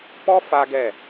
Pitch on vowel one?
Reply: high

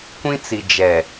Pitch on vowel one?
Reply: high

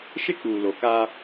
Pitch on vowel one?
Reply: high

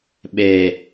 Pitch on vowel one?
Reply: low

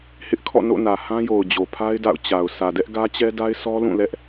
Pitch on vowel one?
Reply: high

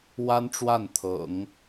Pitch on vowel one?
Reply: high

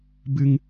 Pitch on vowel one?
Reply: low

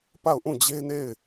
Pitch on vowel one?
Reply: falling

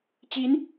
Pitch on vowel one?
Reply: rising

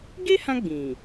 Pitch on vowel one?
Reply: high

